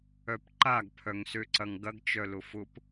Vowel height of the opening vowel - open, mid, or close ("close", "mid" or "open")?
mid